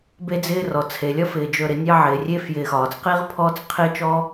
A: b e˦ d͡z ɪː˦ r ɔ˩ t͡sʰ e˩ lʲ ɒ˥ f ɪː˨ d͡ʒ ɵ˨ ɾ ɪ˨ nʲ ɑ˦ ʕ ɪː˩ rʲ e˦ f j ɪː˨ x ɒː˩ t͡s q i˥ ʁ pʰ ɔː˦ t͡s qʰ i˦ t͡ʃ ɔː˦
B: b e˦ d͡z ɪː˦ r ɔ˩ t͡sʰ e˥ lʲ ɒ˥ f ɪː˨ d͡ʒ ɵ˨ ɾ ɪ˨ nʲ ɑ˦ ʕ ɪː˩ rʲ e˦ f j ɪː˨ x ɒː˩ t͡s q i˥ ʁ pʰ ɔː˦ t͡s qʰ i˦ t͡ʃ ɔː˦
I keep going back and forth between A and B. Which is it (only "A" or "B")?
A